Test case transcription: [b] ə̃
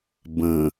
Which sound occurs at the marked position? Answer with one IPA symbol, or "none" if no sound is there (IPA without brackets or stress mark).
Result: b